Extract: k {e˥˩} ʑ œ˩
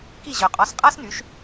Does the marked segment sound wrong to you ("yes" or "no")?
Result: yes